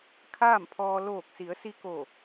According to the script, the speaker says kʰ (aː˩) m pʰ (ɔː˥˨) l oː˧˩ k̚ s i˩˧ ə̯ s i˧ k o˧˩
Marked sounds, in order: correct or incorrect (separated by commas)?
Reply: incorrect, incorrect